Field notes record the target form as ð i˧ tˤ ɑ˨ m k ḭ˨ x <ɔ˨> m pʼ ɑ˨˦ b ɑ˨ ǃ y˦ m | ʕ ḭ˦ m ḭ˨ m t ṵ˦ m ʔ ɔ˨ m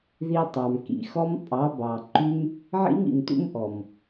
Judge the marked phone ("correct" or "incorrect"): incorrect